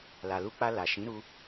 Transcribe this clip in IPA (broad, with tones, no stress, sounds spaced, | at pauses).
l a˨ l u˧ k͡p a˧ l a˨ ʃ ĩ˨˦ ɾ u˧